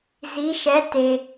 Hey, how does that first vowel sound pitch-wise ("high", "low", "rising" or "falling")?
rising